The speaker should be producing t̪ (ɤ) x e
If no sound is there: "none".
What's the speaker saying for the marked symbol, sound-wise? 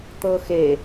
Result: ɤ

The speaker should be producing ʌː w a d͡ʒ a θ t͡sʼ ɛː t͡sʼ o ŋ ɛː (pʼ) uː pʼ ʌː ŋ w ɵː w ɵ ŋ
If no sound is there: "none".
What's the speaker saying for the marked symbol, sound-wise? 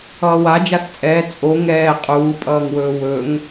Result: qʼ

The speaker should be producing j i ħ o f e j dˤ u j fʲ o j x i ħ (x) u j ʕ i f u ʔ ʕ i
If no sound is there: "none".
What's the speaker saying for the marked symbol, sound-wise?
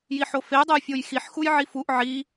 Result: x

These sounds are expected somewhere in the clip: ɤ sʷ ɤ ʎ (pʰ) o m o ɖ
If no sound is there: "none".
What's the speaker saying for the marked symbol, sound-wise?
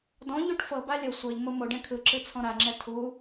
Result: m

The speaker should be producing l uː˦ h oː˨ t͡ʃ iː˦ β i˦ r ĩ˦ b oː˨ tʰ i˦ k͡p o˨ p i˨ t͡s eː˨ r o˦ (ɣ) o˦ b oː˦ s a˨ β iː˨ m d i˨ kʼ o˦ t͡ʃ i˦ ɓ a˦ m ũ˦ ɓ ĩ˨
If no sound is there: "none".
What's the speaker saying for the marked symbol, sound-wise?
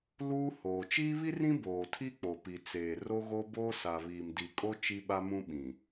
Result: ɣ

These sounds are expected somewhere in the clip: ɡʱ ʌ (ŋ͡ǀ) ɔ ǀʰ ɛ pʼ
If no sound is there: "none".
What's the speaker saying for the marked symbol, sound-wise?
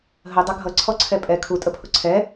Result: ǀʰ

